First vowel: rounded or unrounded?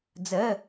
unrounded